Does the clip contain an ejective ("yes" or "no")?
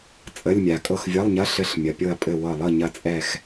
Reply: yes